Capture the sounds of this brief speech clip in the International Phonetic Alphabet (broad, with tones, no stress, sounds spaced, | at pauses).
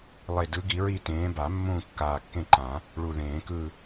lˠ e˨˩ d ɯ˨˦ ɡ i˨˩˦ ɹ i˦˨ t ẽː˨˦ b a˨˩˦ mː ũː˦˨ kː aː˨˩ kː ẽ˦˨ ǃ ã˨˩˦ | ɭ u˨˩ ð ẽː˨˩˦ k ɯ˦˨